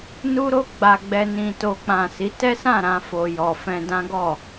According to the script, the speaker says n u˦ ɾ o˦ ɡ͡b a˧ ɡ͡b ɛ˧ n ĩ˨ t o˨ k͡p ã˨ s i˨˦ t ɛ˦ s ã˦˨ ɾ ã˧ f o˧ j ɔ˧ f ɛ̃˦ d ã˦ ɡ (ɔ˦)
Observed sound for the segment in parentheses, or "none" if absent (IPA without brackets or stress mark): ɔ˦˨